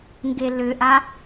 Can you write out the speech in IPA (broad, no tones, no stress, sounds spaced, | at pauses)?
ŋ ɡ e l ʏ ʔ a